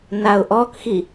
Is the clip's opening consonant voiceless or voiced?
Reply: voiced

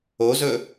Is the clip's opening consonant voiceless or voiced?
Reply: voiced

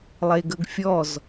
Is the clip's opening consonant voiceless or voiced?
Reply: voiced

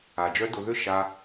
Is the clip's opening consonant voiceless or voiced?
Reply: voiced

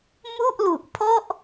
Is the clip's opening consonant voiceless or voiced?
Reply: voiced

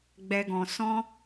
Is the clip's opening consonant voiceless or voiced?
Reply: voiced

